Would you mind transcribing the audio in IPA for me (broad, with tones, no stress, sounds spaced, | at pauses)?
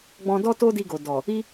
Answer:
ɡ͡b ɔ̃˧ d ɔ˦ t o˦ d i˧ ɡ o˨ d ɔ˨ | i˦